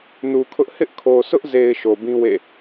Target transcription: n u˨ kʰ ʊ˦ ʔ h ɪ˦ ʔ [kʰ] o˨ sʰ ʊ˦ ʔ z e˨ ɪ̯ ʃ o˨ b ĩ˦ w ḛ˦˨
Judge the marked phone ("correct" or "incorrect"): correct